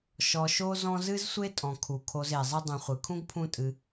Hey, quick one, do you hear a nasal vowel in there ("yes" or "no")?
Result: yes